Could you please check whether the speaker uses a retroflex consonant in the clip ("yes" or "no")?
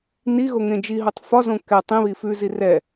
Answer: no